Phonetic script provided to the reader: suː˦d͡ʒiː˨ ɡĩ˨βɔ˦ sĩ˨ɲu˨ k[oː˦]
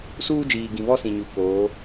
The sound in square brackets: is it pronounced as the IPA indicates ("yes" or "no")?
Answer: no